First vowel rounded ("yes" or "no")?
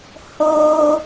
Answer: yes